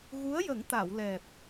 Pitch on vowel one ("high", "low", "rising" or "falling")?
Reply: rising